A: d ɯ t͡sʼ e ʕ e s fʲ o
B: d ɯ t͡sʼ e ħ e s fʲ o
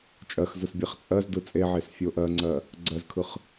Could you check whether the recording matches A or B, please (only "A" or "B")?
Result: A